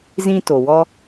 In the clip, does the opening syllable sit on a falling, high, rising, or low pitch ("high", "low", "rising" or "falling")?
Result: high